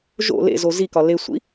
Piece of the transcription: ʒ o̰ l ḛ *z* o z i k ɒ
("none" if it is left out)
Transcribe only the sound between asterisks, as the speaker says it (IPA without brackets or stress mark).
z